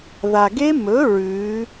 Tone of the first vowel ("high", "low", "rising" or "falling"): low